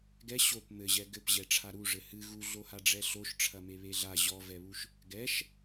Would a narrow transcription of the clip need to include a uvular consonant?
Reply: no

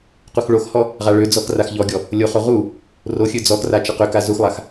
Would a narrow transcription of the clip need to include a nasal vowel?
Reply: no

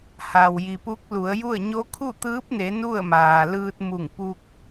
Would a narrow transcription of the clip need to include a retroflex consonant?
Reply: no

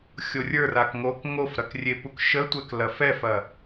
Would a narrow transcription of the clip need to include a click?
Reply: no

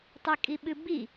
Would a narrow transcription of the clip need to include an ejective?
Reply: yes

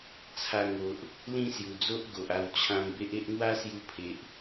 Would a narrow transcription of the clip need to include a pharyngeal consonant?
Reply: no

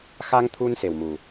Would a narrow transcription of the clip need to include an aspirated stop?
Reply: yes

